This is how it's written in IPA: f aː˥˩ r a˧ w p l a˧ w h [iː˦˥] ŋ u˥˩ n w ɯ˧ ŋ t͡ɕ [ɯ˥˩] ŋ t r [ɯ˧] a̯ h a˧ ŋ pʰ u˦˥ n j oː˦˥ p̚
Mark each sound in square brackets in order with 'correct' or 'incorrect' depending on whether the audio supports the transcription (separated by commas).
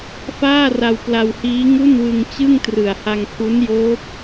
correct, correct, incorrect